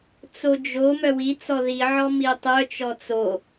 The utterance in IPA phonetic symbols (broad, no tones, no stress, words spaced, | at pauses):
t͡sod͡ʒo mœwi t͡sɔði ʕɔmitˤœ t͡ʃɔt͡so